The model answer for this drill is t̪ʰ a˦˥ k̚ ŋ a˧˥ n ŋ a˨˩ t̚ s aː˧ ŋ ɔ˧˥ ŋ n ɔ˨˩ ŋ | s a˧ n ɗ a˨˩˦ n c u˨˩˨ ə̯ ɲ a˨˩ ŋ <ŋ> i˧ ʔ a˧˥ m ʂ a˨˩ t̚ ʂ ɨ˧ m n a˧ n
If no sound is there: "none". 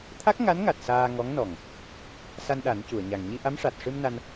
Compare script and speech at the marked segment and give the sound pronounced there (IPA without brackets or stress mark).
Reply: ɲ